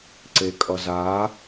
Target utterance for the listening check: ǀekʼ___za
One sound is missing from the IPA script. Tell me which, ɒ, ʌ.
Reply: ʌ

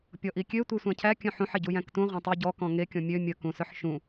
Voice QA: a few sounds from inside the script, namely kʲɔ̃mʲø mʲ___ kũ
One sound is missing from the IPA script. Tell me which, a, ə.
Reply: ə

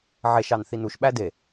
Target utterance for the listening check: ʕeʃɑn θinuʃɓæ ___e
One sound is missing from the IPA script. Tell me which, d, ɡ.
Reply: d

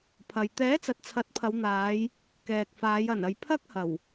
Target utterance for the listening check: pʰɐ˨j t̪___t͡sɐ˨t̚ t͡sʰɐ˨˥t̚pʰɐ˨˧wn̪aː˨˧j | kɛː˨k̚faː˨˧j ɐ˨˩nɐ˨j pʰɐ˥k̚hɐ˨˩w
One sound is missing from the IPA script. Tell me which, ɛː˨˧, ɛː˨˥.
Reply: ɛː˨˥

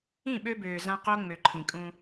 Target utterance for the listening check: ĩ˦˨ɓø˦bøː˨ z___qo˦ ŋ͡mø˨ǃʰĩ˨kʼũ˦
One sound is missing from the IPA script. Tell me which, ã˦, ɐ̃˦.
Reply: ã˦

